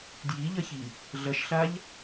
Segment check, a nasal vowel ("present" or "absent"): absent